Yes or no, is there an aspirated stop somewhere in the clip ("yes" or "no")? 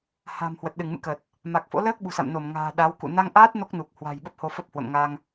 no